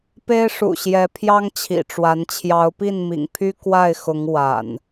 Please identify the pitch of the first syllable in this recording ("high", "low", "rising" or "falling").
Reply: high